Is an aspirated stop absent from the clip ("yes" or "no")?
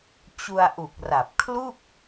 no